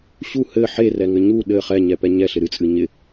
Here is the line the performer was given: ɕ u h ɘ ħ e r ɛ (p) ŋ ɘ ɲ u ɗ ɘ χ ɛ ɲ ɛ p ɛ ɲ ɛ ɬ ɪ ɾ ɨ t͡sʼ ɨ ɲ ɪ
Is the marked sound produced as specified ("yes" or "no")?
no